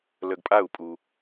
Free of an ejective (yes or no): no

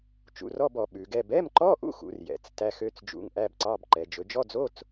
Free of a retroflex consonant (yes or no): yes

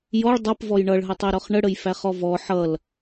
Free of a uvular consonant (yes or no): no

